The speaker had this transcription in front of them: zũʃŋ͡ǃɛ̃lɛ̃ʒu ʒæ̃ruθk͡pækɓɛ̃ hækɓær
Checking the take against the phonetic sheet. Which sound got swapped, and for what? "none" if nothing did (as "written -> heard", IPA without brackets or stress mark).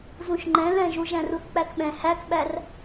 none